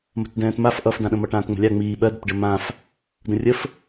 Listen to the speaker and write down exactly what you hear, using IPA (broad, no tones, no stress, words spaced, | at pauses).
mə̤tdɛ̃ːtmaf ʔʌfdãɗə̃mʌ ʈãːtŋ͡mə̤lʲa ŋ͡miː ɓɜdɘtɖɘ mãf | də̃rʲəf